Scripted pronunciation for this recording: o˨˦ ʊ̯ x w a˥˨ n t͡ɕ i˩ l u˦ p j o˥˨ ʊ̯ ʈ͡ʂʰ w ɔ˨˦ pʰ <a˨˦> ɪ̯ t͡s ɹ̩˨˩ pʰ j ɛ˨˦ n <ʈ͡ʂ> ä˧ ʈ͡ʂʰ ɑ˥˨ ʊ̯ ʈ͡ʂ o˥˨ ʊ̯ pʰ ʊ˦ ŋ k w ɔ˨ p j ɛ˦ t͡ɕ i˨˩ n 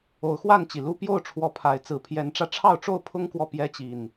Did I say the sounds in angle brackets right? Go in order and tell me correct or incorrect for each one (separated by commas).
correct, correct